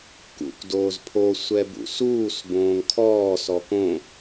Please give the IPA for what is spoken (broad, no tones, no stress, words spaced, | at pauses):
kṵkʷ doːzpʰo sʷɛbṵsuːs bõːŋkʰɔː sɔkõ